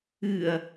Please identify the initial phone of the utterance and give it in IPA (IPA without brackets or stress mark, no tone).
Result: ɨ